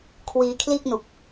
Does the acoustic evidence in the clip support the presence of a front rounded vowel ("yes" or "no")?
no